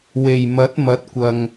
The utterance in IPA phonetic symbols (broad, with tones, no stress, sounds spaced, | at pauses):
w e˨˩ j m ɐ˨˥ t̚ m ɐ˨˥ t̚ kʷ ɐ˨ ŋ